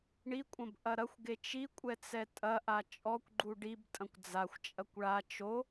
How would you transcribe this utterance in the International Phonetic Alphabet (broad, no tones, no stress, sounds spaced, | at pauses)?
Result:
ɳ i kʷʼ ɐ̃ b ʔ ɐ ɾ ɐ xʷ ɡ e t͡ʃ i kʷʼ ɛ t͡s ɛ tʼ ɐ ʔ a t͡ʃʼ ɔ kʷ ɡ͡ǃ u ɖ i b tʼ ɐ̃ kʷ d͡z a xʷ t͡ʃʼ ɐ kʷ ɭ a t͡ʃ o